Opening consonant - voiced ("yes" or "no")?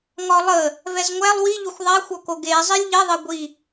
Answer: yes